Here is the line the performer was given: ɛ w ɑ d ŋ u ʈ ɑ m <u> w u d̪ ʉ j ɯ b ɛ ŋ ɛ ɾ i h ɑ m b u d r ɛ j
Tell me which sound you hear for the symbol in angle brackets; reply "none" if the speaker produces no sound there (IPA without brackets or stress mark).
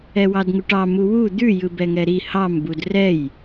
u